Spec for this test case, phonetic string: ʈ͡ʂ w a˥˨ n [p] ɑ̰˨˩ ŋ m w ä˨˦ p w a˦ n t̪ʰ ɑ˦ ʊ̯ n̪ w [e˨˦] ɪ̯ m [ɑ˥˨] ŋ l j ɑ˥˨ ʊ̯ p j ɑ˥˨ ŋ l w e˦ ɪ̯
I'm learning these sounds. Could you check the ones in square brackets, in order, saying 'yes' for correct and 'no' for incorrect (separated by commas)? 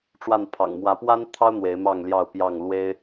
no, yes, yes